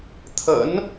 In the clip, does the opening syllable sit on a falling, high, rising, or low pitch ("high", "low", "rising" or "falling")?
rising